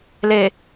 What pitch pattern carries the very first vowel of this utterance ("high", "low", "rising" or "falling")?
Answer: low